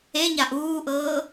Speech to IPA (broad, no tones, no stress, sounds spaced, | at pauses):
e ɲ a ʔ uː ʔ ɤː